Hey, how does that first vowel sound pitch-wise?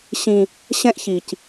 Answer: high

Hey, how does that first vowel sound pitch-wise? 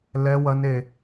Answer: high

